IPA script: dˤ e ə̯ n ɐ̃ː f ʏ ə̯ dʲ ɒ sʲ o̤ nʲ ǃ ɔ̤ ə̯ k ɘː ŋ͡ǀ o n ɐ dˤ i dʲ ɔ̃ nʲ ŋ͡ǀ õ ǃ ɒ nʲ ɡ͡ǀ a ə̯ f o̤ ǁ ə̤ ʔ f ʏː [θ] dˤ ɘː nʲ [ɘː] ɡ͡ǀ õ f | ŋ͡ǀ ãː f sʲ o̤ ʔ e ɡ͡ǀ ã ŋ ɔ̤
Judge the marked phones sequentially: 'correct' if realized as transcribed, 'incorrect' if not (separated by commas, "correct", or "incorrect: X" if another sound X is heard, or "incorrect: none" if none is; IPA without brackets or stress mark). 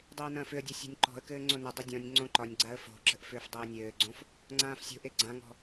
incorrect: f, correct